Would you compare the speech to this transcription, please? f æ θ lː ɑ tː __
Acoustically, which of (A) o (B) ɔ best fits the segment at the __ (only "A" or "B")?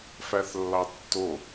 A